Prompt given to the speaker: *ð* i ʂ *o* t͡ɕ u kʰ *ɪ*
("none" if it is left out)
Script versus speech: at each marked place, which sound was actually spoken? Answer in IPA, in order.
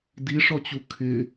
d, ɔ, ɪ

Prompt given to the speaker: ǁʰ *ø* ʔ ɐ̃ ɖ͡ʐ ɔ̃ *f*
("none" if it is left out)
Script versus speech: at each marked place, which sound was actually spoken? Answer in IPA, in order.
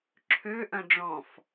ø, f

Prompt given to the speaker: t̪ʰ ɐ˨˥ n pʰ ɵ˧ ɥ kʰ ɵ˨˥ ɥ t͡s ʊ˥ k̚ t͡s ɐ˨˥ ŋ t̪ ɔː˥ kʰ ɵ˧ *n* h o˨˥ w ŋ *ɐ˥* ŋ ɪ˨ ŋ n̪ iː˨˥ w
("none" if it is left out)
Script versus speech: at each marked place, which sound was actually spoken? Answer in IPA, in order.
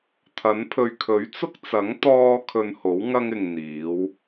n, ɐ˥

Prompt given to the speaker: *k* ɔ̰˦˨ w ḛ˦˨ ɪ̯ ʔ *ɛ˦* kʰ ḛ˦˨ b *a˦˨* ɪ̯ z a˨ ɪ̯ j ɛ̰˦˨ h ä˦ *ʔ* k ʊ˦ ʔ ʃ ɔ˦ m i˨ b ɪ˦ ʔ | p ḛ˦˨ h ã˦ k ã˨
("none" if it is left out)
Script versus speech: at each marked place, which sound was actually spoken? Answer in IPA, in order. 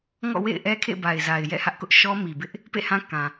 ŋ, ɛ˦, a˨, ʔ

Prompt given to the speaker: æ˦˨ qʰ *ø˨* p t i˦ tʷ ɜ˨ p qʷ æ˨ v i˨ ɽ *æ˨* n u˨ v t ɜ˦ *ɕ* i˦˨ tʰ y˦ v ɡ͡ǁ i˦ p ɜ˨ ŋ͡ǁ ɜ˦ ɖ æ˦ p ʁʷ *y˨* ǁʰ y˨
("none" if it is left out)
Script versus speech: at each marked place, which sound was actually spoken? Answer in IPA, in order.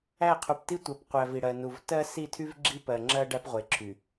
u˨, ɜ˨, s, e˨

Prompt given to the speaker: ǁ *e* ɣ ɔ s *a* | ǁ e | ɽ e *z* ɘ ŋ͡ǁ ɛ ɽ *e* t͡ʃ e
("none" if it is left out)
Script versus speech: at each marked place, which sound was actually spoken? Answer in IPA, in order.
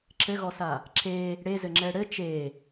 ɘ, a, z, ɘ

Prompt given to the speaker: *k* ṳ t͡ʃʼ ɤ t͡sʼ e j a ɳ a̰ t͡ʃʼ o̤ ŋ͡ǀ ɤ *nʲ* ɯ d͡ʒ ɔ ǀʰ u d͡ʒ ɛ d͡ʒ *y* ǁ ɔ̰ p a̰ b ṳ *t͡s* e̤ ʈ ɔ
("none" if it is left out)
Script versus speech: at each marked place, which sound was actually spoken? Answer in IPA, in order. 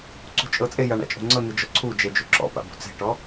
ǀ, n, u, t͡s

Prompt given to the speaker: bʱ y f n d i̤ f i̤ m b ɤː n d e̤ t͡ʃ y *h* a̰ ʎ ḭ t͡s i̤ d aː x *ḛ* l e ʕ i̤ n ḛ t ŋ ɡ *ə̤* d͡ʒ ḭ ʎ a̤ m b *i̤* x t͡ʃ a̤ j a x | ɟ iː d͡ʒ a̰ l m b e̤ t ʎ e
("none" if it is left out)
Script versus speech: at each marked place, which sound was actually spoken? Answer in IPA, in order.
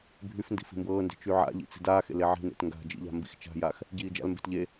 ʕ, ḛ, a̤, ḭ

